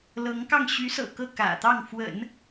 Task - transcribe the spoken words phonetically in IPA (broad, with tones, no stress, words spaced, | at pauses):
lɤ˧˥ŋkɑ˥˩ŋ ɕy˧˥sɤ̰˨˩ kɤ˥˩kä̰˨˩ t̪ɑ˥˩ŋ fwə̰˨˩˦n